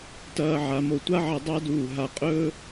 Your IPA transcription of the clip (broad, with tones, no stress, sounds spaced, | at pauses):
t ɐː˧ ʕ a˩˧ m o˧˩ tʷ a˥ ʕ ɐ˧ dˤ a˥ d uː˧˩ ɦ a˧ qʼ ɵː˥